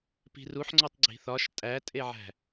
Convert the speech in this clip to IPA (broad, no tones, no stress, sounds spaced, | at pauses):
p i̤ r u ħ ŋ͡ǀ o tˤ ɡ͡ǀ i̤ θ ɒ ʃ tʼ æ tʼ e ʕ æ̤